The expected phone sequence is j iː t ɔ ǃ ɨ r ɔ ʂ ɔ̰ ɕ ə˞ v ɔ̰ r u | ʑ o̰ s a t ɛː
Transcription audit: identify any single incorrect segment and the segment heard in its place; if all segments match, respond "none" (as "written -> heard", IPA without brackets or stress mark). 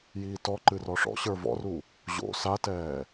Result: none